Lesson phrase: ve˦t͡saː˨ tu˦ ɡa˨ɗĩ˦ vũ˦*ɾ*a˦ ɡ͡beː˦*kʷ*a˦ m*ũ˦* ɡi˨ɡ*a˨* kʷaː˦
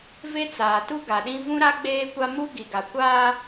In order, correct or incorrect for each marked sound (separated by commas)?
correct, correct, incorrect, correct